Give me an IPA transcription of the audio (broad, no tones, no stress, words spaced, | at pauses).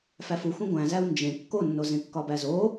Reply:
fæfuxʷẽ ɡʷæ̃zæu̯ nd͡ʒẽ kːonːozẽ kːɒbæzo